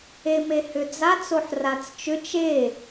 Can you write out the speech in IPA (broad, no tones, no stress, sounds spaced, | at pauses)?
e m e h ʏ d͡z a t͡s o ħ r a t͡s t͡ʃ ʏ t͡ʃ e